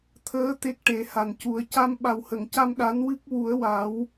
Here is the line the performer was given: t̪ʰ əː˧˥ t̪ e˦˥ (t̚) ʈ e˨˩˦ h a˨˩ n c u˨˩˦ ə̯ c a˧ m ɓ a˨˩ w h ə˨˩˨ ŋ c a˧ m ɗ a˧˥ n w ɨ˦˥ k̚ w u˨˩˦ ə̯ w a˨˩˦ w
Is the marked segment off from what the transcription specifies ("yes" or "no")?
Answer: yes